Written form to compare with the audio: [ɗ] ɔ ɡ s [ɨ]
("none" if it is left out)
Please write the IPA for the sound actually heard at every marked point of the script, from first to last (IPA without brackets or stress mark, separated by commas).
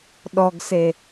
ɗ, e